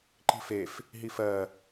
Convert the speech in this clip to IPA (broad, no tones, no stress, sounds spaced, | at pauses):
ǃ i̤ f e f | ɦ i f ɜ